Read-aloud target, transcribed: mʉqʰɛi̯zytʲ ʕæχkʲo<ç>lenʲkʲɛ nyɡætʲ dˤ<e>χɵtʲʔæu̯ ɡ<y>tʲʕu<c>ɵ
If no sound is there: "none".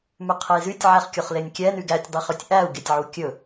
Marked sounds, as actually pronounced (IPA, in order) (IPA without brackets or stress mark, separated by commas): χ, i, e, kʲ